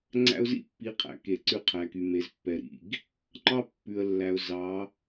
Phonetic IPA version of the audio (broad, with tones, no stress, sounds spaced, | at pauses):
ŋ͡ǀ æ̰˦ ʊ̯ z ḭ˦ pː i˨˦ qʰ æ̰˨ k e˨ ǀ ʉ˦ qʰ æ˨ k y˨ m e˨ z pː ɛ˨ ɾ ḭ˦˨ ɡ | ŋ͡ǃ ɑ˦ pː ʉ˨ ə̯ lː æ˨ ʊ̯ z ɑ˨˦